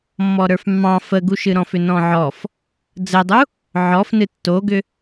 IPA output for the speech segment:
mː ɔ ɾ ə˞ f mː ɑ̃ f ə ɡ u ʃ ɨ ɾ ɔ̃ f ʏ n ɔ̃ ʕ ɔ f | d͡z ə dˤ u | ʕ ɔ f n ɨ tː o ɡ ʏ

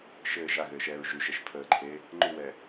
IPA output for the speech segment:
ʃ ɘː ʒ a ɣ ɘː ʃ ɛː ɹ ʒ ʉ ʃ ɛ ʃ pʰ əː ǃʰ eː | ŋ͡ǃ ʉ w ɛː

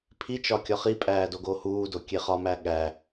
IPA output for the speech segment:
pʰ i t͡ʃ ɒ kʲ ɒ χ i pʼ æː d o ɡ oː h uː d o kʲ e χ ɒ m æ ɠ æ

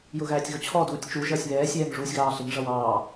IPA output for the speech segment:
j ʊ ɣ æː tʲ ɣ ʊ t͡ɕʰ ɔ d uː tʲ t͡ʃ u ʒ ʌː sʲ β ɛː sʲ ɛː ŋ ʐ uː sʲ ɣ ɑː ɬ ɪ ŋ ʐ ʌ w ɑː

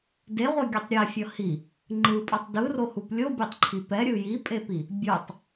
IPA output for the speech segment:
d e ʁʷ e ɡʲ ɛ tˤ ɾʲ ɛ fʲ ʌ h i | ŋ͡ǃ ɯ pʼ ʌ tˤ d ɯ r o h u p lʲ o bʲ e tˤ ǃʰ i p ɛ ɾʲ ɯ j i pʼ e p i | bʲ o tˤ

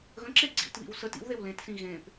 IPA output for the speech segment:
ɣ ə̃ ǁ e ɡ͡ǀ ḭ t β ḭ w s ə t ḭ w ð e w l ẽ t s ĩ ɣ ẽ p

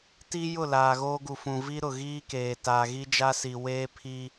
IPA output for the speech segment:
t i˦ j ʊ˦˨ l aː˨ ɣ oː˦ ɡ u˨ f ũ˨ v i˦ ɾ ʊ˨ ɣ iː˦ k eː˨ t a˨ ɣ i˦ d͡ʒ a˦ s i˨ w eː˦ pʰ i˦

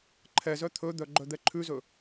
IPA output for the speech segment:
ǃʰ ɛ z œ t̪ʰ ɵ d̪ œ ɡ͡ǃ œ d̪ ɛ ǃʰ ʉ z ɵ

